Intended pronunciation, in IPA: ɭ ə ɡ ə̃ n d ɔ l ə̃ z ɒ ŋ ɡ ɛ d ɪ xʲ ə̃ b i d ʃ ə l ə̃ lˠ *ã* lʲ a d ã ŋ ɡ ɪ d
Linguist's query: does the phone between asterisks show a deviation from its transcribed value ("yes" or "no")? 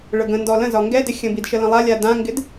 yes